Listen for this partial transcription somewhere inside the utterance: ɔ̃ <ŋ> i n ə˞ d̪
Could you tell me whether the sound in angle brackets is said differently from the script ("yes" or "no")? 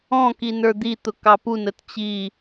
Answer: yes